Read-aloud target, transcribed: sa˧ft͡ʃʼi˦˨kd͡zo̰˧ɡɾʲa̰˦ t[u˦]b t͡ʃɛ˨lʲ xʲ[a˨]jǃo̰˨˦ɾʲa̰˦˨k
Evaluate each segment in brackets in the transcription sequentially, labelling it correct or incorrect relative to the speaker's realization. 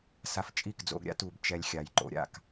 incorrect, correct

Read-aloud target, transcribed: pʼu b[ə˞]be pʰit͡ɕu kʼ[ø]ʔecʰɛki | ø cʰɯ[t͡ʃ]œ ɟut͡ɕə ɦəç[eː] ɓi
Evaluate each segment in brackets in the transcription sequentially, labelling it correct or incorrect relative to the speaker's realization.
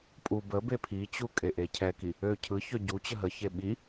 incorrect, incorrect, incorrect, incorrect

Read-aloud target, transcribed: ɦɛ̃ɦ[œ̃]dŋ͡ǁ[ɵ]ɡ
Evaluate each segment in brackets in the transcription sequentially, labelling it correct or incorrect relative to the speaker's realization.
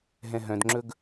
correct, correct

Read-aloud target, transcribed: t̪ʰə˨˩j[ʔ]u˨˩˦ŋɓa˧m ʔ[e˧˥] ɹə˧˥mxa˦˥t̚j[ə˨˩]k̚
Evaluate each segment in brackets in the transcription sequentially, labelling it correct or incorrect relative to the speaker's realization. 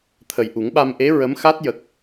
correct, correct, correct

